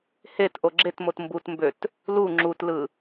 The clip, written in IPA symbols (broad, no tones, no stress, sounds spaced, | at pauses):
h e t ʔ o ɡ͡ǁ e t m o t m b u t m b ø t | l u ŋ͡ǁ u t l ɯ